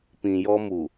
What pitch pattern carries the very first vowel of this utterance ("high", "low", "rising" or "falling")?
low